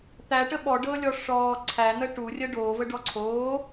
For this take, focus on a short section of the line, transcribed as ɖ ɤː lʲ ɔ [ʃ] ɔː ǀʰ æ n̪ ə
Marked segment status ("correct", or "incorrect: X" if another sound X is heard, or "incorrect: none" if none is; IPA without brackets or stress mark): incorrect: ʂ